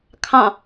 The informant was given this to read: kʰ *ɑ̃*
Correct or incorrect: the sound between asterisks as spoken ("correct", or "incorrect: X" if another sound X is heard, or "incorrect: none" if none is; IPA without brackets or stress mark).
correct